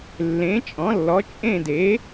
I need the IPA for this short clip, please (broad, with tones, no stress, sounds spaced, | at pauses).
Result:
lː ẽ˩˥ t͡ʃʼ ɔ̃˩˥ lː ɔ˩˥ t͡ʃʼ ẽ˦˨ d e˩˥